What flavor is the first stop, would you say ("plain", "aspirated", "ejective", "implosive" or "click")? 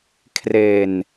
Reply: aspirated